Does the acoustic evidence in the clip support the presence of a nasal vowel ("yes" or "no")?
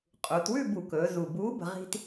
no